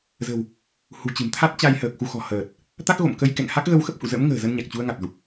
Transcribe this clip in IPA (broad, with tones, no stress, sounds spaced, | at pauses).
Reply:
z ə̤˨˩ w | h ṳ˨˩ t͡ɕ ɨ̤˨˩ m t̪ʰ a˦˥ t̚ t͡ɕ a˧ j h əː˨˩ k̚ x u˧ x ɔ̤˨˩ h əː˨˩ t̚ | t̪ a˦˥ k̚ ɣ o̰˧˨ m k ə˧ j k ɛ̰˧˨ ŋ h a˦˥ k̚ ɣ ə˧ w x ə˦˥ p̚ h ṵ˧˨ z ə̰˧˥ m ŋ ə̤ː˨˩ z ə˧ n ɲ a˨˩ k̚ t͡ɕ u˧ ə̯ ŋ a˨˩ t̚ z u˨˩ k̚